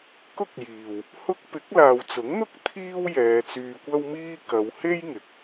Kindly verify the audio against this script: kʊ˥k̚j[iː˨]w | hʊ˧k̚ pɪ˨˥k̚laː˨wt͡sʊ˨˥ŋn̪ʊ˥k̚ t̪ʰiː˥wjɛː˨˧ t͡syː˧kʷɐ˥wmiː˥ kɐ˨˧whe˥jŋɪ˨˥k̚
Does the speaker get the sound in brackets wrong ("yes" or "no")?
no